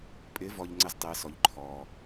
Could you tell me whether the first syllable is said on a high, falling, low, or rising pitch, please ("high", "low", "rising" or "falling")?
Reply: rising